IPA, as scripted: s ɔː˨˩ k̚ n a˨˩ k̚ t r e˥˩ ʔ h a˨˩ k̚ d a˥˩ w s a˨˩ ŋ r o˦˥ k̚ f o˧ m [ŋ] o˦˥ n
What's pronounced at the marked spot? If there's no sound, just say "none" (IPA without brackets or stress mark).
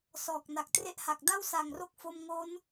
ŋ